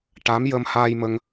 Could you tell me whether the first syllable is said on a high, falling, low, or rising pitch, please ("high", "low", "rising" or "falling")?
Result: rising